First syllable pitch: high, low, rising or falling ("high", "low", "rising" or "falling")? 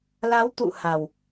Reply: rising